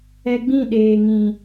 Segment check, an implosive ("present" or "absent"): present